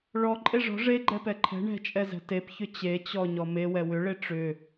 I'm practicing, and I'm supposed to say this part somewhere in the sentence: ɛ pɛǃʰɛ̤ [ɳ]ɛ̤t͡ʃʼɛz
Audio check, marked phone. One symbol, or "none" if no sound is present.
ɳ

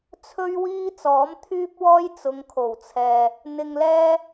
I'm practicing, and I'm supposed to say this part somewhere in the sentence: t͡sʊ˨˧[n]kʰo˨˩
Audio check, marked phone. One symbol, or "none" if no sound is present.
ŋ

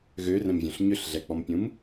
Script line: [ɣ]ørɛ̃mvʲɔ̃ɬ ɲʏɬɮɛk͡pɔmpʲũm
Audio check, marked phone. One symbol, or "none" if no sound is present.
ɣ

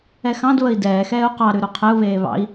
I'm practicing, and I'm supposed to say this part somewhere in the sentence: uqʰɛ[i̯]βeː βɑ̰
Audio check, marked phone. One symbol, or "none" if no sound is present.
u̯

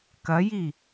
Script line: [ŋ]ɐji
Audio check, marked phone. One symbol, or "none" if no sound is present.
k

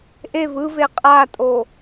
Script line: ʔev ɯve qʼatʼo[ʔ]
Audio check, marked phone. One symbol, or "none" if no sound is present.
none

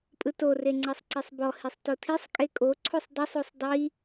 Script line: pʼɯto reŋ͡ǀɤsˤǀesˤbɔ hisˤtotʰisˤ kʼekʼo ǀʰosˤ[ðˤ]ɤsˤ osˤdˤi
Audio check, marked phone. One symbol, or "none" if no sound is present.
dˤ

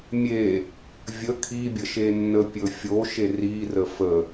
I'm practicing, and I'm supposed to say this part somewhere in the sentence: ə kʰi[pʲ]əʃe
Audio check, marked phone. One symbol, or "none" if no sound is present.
bʲ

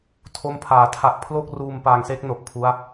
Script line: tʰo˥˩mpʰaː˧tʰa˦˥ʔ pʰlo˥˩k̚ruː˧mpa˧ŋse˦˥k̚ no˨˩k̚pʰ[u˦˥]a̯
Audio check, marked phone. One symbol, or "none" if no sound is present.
u˦˥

